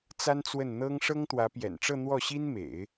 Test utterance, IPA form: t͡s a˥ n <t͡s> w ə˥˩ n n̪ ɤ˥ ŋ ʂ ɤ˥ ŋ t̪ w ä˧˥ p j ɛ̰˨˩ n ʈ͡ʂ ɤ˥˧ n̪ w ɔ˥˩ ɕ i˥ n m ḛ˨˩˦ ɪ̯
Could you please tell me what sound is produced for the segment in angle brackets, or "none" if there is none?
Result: t͡s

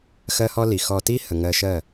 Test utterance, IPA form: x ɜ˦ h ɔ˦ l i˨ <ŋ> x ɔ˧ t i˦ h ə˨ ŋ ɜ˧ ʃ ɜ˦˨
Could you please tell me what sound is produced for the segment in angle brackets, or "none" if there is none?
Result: none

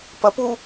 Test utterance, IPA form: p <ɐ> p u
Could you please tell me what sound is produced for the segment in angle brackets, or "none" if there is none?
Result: ɐ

